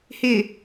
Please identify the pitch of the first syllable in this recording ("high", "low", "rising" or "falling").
low